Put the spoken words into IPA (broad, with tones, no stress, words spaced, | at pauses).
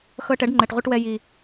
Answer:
xɤ˧ʈɛ˩˥ɖŋ͡ǃɛ˨˩ʈʁʷɯ˧ʈ wɛ˧ ji˨˩